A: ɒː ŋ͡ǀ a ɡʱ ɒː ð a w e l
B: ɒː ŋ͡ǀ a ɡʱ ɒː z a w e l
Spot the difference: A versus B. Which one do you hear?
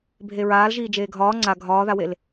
A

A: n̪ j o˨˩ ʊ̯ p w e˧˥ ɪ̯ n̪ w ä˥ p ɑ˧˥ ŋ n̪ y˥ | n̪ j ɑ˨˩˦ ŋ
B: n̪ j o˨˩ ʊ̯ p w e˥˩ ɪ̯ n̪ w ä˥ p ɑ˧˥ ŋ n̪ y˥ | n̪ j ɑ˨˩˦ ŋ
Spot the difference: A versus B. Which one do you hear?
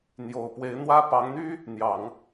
A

